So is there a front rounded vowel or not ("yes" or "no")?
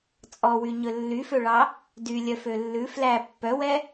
yes